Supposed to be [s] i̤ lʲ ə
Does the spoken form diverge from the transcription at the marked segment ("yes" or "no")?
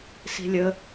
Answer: no